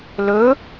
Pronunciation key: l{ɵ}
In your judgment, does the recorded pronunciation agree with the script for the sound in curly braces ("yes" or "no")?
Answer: yes